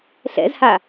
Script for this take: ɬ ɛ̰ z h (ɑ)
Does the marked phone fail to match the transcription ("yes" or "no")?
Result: yes